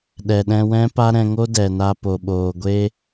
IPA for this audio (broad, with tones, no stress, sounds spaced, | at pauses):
ɗ ɛ˨ ɗ ɛ̃˧ w ɛ̃˦ p a˦ ɾ ɛ̃˧ ŋ o˦ d ɛ˨ n a˧ p o˨ ɓ oː˨ ɡʷ e˦